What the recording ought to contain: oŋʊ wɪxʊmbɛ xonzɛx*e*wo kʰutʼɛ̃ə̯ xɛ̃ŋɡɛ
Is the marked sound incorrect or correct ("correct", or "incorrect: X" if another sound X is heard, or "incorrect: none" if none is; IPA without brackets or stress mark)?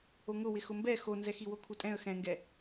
incorrect: i